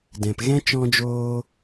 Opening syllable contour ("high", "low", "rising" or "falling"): low